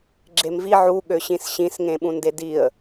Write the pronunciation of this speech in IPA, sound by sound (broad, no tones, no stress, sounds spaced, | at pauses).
ɡ͡ǁ e m v i ʕ u ɠ ø ɕ ĩ s ɕ ĩ s ŋ ẽ ɓ ũ n d e d i ə̯